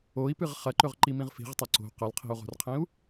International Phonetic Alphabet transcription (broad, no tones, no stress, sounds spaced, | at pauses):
o i̯ p ɨ ʁ χ ɐ ǃ ɵ ʁ ǃ i m ĩ ʁ f i̤ ʁ tˤ ɐ ǀ o̤ q ɐ l qʰ i̤ u̯ ʁ o̤ r qʰ ĩ u̯